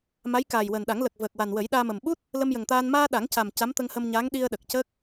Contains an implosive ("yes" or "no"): yes